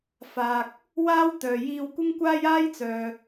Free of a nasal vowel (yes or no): yes